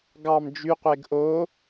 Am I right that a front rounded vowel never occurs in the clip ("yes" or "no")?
no